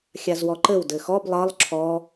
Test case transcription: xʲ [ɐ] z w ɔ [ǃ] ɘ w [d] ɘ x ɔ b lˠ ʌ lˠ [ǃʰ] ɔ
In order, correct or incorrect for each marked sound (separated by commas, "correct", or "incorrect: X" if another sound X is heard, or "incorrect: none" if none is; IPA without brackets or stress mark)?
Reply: incorrect: a, correct, correct, incorrect: ǁʰ